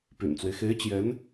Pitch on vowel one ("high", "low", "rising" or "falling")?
low